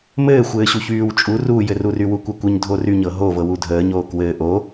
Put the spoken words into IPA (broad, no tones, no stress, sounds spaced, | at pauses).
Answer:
m ɘː xʷ ɘː ɕ u ç yː w t͡ʃʼ u r u j ɘ r u r y w u kʷ ɐ kʷ ɘ ɲ dʱ o r y ɲ ɤ ɦ o v ɤ w u dʱ əː ɲ oː k w ɘː ʔ o